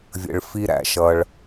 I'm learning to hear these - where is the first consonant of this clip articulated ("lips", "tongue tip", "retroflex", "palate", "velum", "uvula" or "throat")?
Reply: lips